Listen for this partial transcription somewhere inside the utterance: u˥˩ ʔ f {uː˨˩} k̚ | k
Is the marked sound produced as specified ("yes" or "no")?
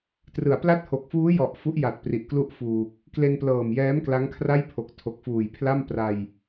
yes